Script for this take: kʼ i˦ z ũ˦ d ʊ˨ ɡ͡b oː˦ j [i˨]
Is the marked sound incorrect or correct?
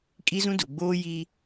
incorrect